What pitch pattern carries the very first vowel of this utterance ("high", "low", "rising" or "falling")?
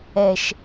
low